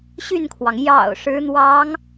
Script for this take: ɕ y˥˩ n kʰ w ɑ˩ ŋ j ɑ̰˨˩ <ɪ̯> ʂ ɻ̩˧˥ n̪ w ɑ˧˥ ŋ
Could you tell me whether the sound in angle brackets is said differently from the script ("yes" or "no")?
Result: yes